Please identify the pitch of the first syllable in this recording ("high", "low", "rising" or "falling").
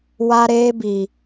high